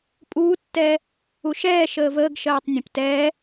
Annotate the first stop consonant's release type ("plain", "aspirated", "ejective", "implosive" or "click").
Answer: ejective